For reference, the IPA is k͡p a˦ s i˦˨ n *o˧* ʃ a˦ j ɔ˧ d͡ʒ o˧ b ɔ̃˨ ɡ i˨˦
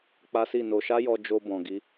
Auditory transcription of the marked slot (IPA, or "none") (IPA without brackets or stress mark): o˧